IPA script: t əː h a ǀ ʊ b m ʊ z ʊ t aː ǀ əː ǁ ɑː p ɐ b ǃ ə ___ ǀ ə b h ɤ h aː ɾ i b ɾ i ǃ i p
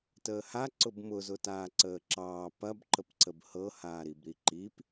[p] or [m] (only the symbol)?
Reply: p